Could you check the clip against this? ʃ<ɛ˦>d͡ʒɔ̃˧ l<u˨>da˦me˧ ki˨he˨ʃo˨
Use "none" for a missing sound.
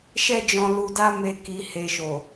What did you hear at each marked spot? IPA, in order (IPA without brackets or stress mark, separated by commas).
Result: ɛ˦, u˧